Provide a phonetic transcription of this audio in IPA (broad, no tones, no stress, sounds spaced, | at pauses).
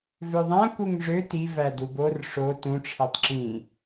v ø ðˤ æ̃ k u ŋ ʐ ø t i v æ d u b o r ʂ o t ũ ʈ͡ʂʰ e tˤ ǁ ĩ